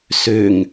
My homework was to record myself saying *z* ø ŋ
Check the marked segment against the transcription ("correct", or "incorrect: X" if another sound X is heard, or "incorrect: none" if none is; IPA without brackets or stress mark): incorrect: s